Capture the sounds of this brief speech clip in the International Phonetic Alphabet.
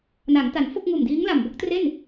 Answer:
na˩˦ŋta˩˦n fo˥˩k̚ŋuː˨˩mdiː˦˥ŋ la˨˩mbo˦˥k̚tre˥˩n

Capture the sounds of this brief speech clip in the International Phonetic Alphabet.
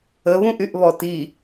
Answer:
əβũʔyʔβɔ ti

